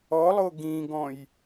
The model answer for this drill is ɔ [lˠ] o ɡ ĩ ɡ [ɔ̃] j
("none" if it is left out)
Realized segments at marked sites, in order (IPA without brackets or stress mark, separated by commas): lˠ, ɔ̃